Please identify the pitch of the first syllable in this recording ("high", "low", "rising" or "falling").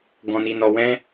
low